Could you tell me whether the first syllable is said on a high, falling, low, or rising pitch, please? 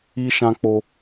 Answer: high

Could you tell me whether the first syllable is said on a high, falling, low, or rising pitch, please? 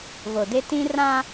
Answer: low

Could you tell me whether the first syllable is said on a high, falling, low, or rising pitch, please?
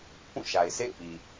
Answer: falling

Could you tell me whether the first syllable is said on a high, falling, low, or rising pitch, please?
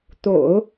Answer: low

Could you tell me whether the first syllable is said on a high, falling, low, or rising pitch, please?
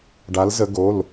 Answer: rising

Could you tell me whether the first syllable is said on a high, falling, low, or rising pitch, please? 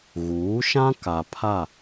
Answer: rising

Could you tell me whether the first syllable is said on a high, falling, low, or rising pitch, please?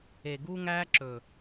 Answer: low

